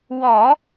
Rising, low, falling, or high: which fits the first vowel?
low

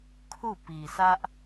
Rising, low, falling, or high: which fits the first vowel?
falling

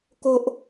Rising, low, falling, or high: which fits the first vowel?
high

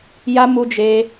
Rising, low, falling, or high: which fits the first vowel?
high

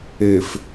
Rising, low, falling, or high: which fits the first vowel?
low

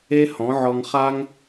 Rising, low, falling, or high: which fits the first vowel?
high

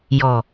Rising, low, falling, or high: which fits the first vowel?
low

